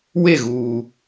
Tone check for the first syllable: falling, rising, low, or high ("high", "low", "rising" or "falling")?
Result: falling